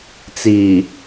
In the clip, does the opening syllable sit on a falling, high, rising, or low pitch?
low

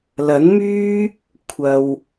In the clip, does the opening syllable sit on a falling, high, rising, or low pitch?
rising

